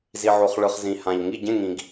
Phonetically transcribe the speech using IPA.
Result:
zi˨ʕo˨χɭɯ˨χ zĩ˨hã˨ʎ ŋi˥˨ ɟẽ˥˨ŋĩ˨ɡ

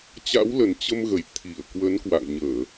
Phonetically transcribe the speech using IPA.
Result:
t͡ɕa̰˧˥wlə˨˩n t͡ɕə˧mɣə˧˩j t̪ʰi˧˩ə̯kwə˨˦n kwa̰˧˨ŋɲəː˧˩˨

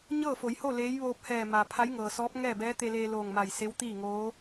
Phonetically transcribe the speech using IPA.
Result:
ɲɤː˥˨fo˩˧jho˥˨ leː˧˥j ʋoː˧p̚hɛː˧˩ ma˩ pʰa˧˥jŋɤː˩sɔː˧˥p̚ ŋɛː˥˨bɛː˧˥ t̪e˧leː˧ loː˧˩ŋma˧˩jse˧˥w t̪iː˥˨ŋoː˧˥

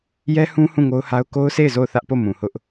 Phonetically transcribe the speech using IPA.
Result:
jɛ˦hũ˦ hũ˦˨ŋo˦ʊ̯ha˦ʊ̯ ko˦ʊ̯se˦˨ɪ̯ zo˦˨ʊ̯θä˦ʔpo˦˨ mũ˨hʊ˦ʔ

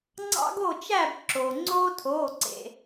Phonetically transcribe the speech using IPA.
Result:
ŋ͡ǀɑ̰˦ɡo˦˨t͡ʃæ˦˨b ǁo˩ ŋ͡ǀoː˦tʰoː˩˧˩ǀḛ˩

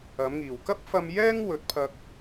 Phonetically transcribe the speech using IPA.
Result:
ɐ˨˥mŋiː˨˩w kɐ˥p̚fɐ˧mjɛː˥ŋ wɵ˨˥t̚pʰɐ˧k̚

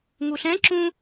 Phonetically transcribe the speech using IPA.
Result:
ŋuɬɛ̃ǁũ

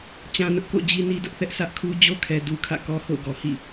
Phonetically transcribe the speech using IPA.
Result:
t͡ɕã˦nʊ˦ʔ ko̰˦˨ d͡ʑi˦ni˦dʊ˦ʔθɛ˦ʔ sʰä˦ʔkʰu˦ d͡ʑo˦kʰɛ˨ du˦kʰä̰˦˨ kɔ˦ho̰˦˨ʊ̯ɡɔ˨hḭ˦˨

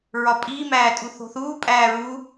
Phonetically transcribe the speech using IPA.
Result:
ɹɒpʼiːmæːtʼu θo̤θuː pʼæːɹu

